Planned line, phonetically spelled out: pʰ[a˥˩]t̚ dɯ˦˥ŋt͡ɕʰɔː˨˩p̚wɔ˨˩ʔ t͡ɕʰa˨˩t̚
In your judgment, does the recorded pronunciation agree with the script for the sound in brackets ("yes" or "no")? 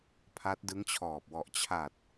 no